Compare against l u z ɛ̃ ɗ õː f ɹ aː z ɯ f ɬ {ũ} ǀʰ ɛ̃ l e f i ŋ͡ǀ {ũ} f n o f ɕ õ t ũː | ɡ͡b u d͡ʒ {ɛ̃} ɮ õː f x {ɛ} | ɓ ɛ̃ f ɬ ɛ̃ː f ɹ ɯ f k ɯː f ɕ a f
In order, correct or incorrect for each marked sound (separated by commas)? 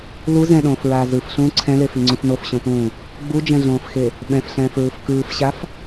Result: incorrect, correct, correct, incorrect